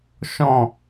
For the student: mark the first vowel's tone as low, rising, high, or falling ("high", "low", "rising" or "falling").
falling